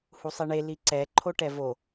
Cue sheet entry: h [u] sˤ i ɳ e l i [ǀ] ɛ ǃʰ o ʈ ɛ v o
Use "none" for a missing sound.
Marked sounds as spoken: u, ǀ

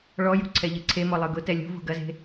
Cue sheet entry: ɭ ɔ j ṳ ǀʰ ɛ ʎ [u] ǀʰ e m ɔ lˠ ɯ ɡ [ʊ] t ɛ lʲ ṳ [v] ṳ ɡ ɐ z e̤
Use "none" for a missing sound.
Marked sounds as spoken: ɯ, ʊ, v

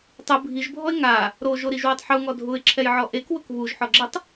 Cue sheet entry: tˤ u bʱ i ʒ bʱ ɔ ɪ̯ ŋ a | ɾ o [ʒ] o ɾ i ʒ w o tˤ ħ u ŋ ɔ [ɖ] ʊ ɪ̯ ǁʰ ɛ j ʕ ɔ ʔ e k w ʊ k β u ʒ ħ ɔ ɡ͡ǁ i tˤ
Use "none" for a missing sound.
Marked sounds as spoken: ʒ, dʱ

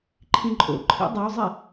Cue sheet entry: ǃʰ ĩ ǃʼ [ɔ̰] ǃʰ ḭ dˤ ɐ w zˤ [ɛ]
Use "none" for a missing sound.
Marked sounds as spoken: o̰, ɛ

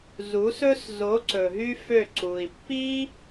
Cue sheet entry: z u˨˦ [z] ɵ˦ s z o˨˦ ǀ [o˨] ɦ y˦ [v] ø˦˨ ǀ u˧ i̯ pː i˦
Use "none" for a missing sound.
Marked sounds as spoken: s, ɵ˨, f

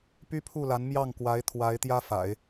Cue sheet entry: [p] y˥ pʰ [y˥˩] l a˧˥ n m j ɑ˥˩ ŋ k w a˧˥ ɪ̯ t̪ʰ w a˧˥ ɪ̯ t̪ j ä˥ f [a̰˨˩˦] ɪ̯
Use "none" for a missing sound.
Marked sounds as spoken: p, u˥˩, a̰˨˩˦

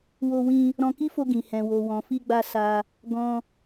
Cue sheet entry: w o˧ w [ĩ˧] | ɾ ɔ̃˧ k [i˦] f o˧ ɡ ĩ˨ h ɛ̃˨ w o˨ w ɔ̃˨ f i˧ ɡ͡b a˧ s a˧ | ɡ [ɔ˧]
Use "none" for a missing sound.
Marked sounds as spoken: ĩ˧, i˦, ɔ̃˧

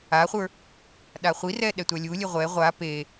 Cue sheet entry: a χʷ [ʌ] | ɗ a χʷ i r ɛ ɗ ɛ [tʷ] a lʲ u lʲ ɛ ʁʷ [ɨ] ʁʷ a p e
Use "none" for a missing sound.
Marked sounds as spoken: ə˞, tʷ, ɛ

